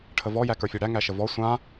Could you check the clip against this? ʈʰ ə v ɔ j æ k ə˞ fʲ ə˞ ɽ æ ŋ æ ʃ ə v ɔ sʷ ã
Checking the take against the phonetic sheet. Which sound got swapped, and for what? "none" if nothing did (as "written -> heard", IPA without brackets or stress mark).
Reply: none